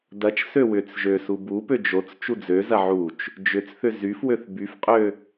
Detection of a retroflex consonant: absent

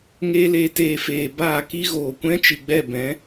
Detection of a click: absent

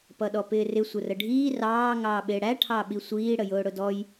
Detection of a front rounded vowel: absent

